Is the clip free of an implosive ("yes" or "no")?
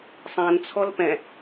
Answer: yes